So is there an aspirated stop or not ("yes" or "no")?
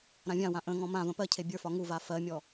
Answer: yes